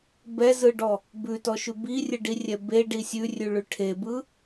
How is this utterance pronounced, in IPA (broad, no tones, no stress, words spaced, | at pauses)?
bɛzɯɖɔ | bʉtɔʃʉ birʲɯɖirʲɛ beɖi sʲʉrʲʉɭʉ ʈʰebɯ